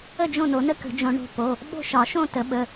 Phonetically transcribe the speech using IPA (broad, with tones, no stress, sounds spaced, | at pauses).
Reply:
ə˥˨ d͡ʒ õ˥˨ n o˨˩˦ n ə˥˨ k ə̤˨˩˦ d͡ʒ õ˨˩˦ ɳ o̤˩˧˩ p o˩˧˩ | ɓ o̤˥˨ ʃ ɒ˨˩˦ ʃ õ˥˨ t ə˨˩˦ ɓ ə˩˧˩